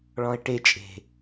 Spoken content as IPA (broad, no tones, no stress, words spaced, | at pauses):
ɭɔ̃ɪ̯ʈet͡ʃʼe̤